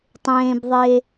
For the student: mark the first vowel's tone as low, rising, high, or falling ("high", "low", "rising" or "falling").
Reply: low